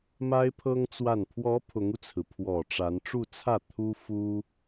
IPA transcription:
m a˥ ɪ̯ pʰ ɤ˥ ŋ t͡s w a˥˩ n pʰ w ɔ˧˥ pʰ ʊ˧˥ ŋ u˧ t͡sʰ ɹ̩˩ pʰ w ɔ˨˩ ʈ͡ʂ a˧˥ n ʈ͡ʂ u˥˧ t͡sʰ ä˥˩ t̪ʰ u˥ f u˥

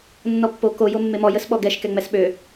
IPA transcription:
nː ɔ pː o k o j o mː e m ɔ j ə s ɓ ɔ ɡ ɛ ʃ k ɛ ŋ͡m ɛ s ɓ ø

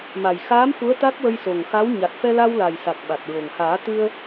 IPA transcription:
m a˨˩ j x aː˧˥ m f u˧˥ ə̯ t̪ a˦˥ k̚ w ə˧ j s o˨˩ ŋ x a˧˥ w ɲ a˨˩ t̚ f ɛ˧ l a˧ w l a˨˩ j s a˨˩ k̚ ɓ a˨˩ t̚ ɹ o˨˩ ŋ h aː˨˩˦ t̪ ɨ˧ ə̯

